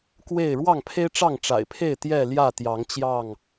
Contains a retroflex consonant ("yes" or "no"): yes